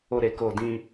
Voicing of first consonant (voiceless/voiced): voiced